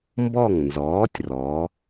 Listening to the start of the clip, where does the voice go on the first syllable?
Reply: falling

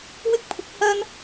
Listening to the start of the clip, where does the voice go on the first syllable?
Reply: high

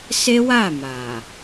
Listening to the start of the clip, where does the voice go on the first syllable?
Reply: high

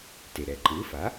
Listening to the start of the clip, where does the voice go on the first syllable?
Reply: low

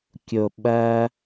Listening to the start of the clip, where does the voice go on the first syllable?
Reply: low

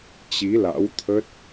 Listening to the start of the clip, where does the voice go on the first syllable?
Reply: rising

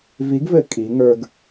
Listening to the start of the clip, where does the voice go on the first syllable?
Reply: rising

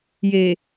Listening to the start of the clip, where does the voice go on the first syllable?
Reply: low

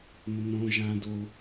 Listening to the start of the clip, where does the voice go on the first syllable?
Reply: low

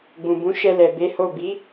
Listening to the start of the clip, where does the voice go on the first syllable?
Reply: low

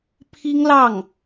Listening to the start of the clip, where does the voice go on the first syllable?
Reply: high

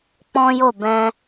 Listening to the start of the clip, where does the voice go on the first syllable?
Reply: high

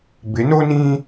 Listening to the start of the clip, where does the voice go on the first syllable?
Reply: rising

